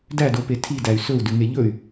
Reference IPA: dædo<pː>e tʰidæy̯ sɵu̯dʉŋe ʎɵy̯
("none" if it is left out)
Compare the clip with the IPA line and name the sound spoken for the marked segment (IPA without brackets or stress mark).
p